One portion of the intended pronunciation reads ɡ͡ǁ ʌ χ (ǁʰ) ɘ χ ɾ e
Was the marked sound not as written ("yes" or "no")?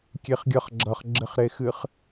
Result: yes